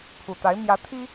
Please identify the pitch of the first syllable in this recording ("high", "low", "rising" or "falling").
low